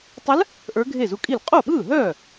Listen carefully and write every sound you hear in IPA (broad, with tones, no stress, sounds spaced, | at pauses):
tˤ ə˧˥ l | ʔ ə˞˧˥ ɡʱ e˥˩ z u˧˥ kʼ i˥˩ l qʼ o˥˩ ɓ ɯː˥˩ ɦ œː˥˩